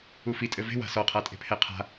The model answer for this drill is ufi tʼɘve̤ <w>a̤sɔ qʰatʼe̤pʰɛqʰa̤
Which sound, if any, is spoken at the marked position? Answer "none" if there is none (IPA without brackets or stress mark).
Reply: w